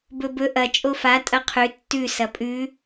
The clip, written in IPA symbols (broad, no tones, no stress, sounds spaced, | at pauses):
b ɵ b ɵ ʔ ɐ t͡ʃʼ o f a tʼ ɐ qʰ ʉ tː ʉ s ɐ pʼ ʉ